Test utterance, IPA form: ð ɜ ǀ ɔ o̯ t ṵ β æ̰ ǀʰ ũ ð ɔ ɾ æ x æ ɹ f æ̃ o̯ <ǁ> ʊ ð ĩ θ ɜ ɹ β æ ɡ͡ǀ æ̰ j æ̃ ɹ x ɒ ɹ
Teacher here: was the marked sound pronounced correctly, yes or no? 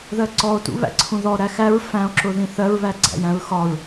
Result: yes